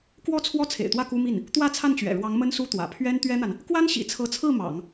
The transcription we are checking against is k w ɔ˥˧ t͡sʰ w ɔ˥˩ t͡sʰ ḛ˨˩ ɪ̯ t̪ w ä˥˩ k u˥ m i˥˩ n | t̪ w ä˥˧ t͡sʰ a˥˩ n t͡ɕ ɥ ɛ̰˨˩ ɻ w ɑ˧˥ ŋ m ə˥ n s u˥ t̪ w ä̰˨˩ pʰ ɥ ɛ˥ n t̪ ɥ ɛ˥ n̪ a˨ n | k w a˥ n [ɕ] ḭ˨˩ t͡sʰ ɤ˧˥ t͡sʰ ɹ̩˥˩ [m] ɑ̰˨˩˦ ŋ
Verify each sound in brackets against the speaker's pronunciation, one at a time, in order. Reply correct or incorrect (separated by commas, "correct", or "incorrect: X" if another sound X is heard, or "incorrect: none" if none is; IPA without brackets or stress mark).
correct, correct